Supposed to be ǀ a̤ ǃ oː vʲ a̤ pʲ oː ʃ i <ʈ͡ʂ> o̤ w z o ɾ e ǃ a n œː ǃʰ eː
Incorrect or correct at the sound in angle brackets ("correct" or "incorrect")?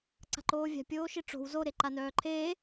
correct